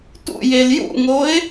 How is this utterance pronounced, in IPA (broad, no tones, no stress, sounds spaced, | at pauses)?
t ṵ j e l j ṵ ŋ o ɪ̯